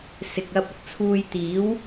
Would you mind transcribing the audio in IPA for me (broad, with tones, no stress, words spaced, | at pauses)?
sɪ˨k̚ɐ˧p̚ ɐ˨t̚t͡sʰuː˧j t̪iː˨˥w